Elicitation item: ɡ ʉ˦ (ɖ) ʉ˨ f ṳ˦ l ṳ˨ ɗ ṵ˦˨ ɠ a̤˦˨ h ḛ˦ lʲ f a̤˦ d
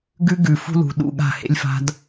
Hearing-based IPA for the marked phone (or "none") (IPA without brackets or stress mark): ɡ